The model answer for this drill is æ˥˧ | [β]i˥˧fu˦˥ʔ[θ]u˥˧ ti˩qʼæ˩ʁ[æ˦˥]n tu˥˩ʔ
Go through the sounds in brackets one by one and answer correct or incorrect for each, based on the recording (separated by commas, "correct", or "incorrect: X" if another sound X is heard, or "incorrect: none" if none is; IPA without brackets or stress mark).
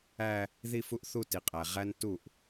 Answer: incorrect: ð, correct, correct